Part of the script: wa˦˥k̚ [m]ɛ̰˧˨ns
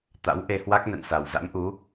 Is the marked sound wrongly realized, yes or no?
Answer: yes